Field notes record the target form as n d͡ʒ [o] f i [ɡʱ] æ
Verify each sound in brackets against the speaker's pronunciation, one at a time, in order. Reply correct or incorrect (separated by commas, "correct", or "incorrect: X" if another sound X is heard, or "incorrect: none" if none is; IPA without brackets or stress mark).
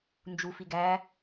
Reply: incorrect: u, incorrect: ɡ